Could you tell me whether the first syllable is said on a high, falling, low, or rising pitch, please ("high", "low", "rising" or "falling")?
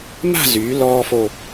falling